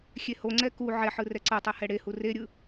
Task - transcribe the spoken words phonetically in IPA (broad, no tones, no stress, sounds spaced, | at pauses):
xʲ e h o ŋ͡ǀ ɛ k u ʕ ɛ ħ ɯ r ɛ ǀ ɤ tˤ ɛ h ɛ ɽ e h u r e ɾʲ ɯ